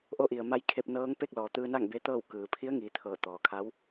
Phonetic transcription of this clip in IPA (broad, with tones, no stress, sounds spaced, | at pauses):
ʔ o˧ ʔ i˩ ə̯ m a˧ j kʰ e˧ p̚ n ɤː˧˥ ŋ p e˥˨ k̚ l ɔː˩ t̪ ɯː˧ n a˥˨ ŋ b e˧˥ t̪ ɤː˥˨ w k ɯː˩ pʰ i˧˥ ə̯ ŋ iː˩˧ t̪ʰ ɤː˧˩ t̪ ɔː˩ kʰ a˧˥ w